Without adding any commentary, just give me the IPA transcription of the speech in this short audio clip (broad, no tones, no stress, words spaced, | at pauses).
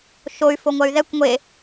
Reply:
ʃoy̯ foŋʷɐy̯ðɛkʷ ŋʷe